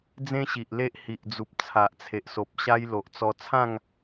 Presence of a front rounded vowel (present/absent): absent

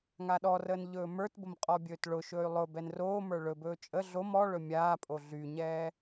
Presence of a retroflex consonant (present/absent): present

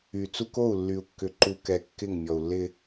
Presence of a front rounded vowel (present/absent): present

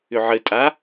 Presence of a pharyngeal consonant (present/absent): present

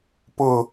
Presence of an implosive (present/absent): absent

